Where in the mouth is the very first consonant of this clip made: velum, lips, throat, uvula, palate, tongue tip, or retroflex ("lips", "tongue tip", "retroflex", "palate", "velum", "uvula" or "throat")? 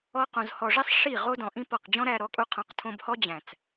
uvula